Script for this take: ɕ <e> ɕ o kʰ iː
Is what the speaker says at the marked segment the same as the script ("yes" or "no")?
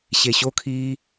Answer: yes